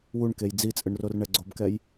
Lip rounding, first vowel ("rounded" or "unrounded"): rounded